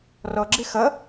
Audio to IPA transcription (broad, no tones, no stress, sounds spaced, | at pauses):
r ɔ ɡ͡ǁ ɪ x ʌ